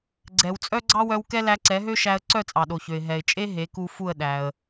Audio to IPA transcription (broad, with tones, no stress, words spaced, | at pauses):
ɡ͡ǀɛ˩wt͡sʼœ˥ ɡ͡ǀɑ˥wœ˧wkɛ˥ læ˧ǀɛ˩˥ɦø˥ʃæ˧ə̯ ǀœ˥˩t͡sʼɑ˩ɗo˩çø˩ɪ̯ ɦɛ˩ɪ̯t͡ʃʼe˥ ɦe˩˥ku˧fu˥˩ə̯ ɗæ˩ə̯